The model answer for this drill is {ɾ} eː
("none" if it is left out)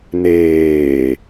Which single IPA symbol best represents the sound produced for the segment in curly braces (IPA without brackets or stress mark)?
n